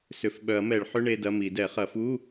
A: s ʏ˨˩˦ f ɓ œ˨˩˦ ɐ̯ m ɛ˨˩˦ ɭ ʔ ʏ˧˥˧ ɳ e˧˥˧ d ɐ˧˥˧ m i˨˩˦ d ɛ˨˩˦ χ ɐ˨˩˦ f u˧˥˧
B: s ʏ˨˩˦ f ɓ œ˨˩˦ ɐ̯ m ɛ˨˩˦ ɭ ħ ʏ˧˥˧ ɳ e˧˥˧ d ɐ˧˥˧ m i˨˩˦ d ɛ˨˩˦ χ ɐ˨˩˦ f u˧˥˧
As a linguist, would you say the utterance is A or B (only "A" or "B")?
B